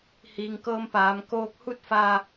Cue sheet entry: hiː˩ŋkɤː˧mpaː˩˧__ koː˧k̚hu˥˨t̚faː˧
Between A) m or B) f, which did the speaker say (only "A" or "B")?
A